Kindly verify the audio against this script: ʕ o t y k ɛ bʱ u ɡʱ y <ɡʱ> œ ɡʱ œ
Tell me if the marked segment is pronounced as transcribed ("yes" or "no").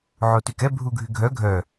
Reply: yes